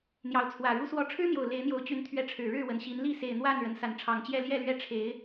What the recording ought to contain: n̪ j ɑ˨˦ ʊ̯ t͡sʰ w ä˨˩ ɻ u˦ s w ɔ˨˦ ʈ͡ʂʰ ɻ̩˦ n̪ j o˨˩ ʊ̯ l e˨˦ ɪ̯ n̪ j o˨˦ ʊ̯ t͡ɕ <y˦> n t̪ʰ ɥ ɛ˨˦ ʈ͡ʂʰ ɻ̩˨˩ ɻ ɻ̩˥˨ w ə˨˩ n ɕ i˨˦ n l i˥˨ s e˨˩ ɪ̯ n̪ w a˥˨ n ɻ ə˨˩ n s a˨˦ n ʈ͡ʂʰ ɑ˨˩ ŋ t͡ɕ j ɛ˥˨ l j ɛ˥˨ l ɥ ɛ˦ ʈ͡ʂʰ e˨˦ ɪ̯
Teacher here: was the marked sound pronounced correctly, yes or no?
no